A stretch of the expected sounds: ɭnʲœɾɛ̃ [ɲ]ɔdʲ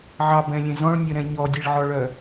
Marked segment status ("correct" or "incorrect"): correct